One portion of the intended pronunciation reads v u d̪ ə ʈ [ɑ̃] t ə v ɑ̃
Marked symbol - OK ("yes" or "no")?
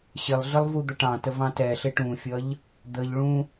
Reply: yes